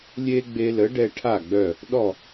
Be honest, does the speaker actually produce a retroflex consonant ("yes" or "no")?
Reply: yes